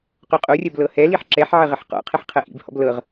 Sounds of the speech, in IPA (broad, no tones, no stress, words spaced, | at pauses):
qoqʼorʲɐb lɤhɛliħ ǁɛħʕə ʁəħqɔ̰qʰəħ qʰɐʔḭbhɔ̰b lɤʁ